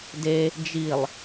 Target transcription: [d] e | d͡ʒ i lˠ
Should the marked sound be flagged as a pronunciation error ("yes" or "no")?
no